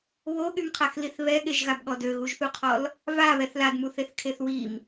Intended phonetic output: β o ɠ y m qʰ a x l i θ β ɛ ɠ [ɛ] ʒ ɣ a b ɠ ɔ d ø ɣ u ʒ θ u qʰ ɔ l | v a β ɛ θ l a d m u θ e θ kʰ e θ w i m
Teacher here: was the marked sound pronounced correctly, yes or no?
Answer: no